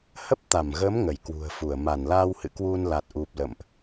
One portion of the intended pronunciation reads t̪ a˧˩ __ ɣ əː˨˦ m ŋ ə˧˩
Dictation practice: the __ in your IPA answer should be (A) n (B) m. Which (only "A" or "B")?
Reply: B